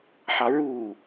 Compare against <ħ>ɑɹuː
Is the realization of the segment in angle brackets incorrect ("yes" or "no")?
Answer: no